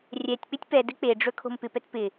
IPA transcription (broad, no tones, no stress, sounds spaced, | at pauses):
rʲ ɛ tʲ k͡p ɪ tʲ p ɛ d ɘ k͡p e ɖ͡ʐ ɵ kʰ o̤ m p ɪ p ɛ t p ɪ